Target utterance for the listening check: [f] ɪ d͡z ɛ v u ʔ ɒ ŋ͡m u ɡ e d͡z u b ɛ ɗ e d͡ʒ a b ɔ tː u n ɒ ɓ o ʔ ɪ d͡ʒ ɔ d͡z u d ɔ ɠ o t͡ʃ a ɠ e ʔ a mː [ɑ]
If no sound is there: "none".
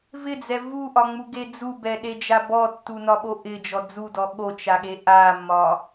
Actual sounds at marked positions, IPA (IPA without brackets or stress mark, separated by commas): v, ɒ